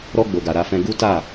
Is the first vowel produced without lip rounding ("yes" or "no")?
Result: no